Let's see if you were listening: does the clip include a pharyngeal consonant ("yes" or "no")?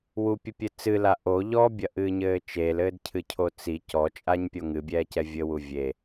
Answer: no